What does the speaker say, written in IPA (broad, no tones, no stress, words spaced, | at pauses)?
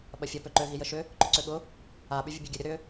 ɓɐfʲə pøǃø ɣijəʃʏ | ǃʏǀøɠʊ | a ɓyvʲəbʲɐɡʲɐ ɾʲʊɾʏ